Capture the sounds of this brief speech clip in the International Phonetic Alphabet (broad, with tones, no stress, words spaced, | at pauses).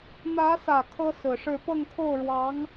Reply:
n̪ä˧˥sä˨˩ kʰɤ˥sɹ̩˨˩ʂɻ̩˥˧ pɤ˥˧ŋkʰo˥˩ʊ̯ɻwɑ˧˥ŋ